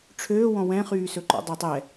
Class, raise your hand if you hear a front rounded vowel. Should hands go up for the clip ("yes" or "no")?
yes